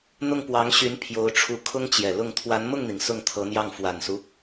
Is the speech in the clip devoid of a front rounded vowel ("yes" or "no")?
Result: no